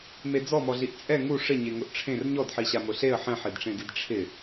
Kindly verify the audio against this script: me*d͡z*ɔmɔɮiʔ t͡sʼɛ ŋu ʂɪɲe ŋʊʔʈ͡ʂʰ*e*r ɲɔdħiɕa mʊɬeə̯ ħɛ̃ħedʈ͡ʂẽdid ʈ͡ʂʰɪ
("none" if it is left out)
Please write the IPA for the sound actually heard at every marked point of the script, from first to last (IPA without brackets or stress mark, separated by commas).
d͡z, ẽ